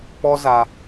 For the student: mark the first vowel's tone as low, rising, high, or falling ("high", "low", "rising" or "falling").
high